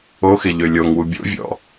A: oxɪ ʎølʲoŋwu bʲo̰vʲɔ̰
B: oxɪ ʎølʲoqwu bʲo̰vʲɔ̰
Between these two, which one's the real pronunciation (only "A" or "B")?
A